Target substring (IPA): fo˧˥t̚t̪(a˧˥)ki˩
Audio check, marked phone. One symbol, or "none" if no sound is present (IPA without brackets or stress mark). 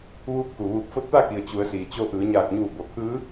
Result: a˥˨